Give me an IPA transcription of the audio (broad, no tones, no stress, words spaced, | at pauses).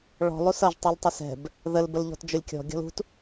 ɭɔ̤ lˠusʌʒ tˤultˤəsɛ̤b | ðəl bəlʎɔ̤td͡ʒʊlʲkʲɔ̤ ɡʲɔ̤lṳt